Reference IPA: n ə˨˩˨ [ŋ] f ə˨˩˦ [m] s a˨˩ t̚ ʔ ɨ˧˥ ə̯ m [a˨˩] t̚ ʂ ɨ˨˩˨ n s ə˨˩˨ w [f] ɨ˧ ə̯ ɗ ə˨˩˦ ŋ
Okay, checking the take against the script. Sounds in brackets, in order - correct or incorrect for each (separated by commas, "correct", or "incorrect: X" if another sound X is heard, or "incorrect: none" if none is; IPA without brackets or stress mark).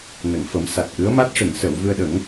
correct, correct, incorrect: a˦˥, incorrect: v